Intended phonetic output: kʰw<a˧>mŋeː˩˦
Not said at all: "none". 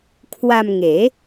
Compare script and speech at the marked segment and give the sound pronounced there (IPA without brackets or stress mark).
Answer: a˧